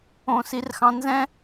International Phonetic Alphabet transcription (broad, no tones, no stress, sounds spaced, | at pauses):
õ s i r x ɑ̃ n z ɛ̃